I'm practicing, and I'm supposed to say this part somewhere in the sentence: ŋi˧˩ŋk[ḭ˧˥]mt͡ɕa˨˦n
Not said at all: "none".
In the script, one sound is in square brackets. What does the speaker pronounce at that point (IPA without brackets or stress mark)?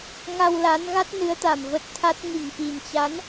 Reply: i˨˩